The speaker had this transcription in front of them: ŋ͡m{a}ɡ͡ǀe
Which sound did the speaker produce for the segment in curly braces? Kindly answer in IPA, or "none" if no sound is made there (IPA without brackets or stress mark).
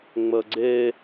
ə